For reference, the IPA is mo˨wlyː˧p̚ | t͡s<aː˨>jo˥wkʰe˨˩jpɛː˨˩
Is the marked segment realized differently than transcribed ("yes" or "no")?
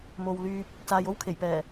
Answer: no